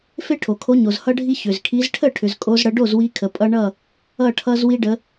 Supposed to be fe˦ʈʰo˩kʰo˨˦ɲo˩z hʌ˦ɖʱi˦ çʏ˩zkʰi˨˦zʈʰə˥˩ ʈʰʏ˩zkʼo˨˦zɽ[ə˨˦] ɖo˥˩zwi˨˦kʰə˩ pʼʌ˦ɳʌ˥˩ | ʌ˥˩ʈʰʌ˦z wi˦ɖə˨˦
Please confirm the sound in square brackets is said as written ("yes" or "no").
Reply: yes